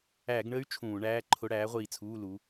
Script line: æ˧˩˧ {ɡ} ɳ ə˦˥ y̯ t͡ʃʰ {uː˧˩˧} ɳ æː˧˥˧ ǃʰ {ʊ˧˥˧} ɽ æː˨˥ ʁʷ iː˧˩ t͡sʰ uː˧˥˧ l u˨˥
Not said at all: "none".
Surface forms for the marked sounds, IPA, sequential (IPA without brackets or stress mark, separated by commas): ɡ, ũː˧˩˧, ʊ˧˥˧